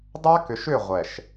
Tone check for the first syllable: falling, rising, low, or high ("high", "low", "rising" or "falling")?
high